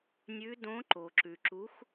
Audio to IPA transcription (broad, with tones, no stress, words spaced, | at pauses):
nʲʉ˧˥dõ˧˥ ǃo˨ǁʉ˨ǁu˧˥x